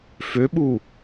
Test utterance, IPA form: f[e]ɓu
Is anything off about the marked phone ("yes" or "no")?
yes